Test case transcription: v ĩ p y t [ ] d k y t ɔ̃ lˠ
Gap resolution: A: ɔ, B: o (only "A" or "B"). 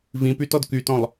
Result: A